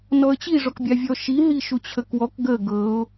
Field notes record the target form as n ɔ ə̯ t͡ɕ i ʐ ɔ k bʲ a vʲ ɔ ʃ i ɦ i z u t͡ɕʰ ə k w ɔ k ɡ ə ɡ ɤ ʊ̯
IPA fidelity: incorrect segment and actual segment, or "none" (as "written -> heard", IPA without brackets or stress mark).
z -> ʃ